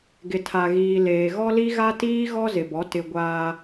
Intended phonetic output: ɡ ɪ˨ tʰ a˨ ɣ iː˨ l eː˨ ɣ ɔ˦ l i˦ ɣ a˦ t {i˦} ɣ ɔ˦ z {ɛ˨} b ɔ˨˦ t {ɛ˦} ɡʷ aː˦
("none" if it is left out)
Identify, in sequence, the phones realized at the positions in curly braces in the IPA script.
iː˦, ɪ˨, ɪ˦

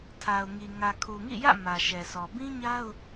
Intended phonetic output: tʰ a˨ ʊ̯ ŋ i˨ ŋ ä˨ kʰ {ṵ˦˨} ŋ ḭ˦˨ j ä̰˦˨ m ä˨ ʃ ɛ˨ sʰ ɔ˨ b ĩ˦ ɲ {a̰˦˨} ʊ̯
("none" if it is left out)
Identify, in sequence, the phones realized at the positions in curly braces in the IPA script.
u˨, a˦

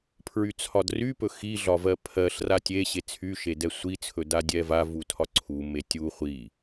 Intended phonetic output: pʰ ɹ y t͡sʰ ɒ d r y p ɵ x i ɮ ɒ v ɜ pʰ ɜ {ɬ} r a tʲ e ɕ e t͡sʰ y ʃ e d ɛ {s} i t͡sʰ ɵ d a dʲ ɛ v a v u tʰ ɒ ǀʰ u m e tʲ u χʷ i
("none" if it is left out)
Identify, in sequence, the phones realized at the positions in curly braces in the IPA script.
ɬ, sʷ

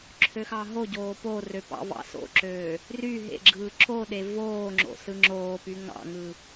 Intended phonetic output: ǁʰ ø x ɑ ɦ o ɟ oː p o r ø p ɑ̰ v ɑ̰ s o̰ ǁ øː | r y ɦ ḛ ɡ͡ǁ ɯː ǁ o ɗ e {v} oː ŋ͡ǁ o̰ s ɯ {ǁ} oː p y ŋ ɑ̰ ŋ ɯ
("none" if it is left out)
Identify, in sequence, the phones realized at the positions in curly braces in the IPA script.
v, ŋ͡ǁ

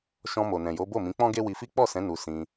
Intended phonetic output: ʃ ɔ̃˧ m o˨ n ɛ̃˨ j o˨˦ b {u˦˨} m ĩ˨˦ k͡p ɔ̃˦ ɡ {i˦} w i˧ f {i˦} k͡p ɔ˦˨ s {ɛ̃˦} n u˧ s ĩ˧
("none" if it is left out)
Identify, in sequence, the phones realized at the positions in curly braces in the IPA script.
o˦˨, e˦, i˦, ɛ̃˨˦

